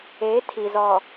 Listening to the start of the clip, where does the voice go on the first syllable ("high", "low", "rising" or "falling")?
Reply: rising